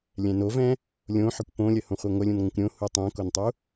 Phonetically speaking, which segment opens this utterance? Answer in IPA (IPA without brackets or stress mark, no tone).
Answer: lʲ